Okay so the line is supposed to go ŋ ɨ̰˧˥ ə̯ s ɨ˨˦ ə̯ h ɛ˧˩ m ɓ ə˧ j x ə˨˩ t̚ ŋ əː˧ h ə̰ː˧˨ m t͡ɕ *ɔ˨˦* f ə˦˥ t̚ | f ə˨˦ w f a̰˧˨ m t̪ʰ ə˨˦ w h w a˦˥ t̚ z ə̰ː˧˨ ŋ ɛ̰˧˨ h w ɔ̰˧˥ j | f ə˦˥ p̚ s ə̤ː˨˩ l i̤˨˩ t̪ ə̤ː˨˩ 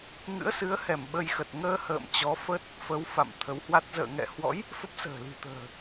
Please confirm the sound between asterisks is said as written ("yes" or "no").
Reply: yes